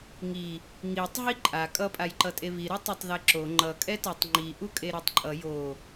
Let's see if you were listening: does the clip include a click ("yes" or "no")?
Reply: yes